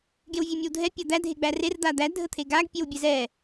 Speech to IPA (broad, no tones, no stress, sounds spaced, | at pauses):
ɡ e w vʲ e mʲ ə w dʱ ɛ pʲ a d̪ æ dʱ e ɡ͡b æ r e r d̪ a d̪ æ dʱ ə t̪ʰ e ɡ a ɡ pʲ e w bʲ ɛ z ɛ